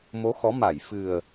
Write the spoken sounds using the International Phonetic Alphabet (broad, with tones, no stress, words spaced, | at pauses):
mo˨˦xɔ˨˦ma˧˩j fɨ˨˩ə̯